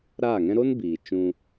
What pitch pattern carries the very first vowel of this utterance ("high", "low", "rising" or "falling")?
falling